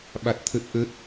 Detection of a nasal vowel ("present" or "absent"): absent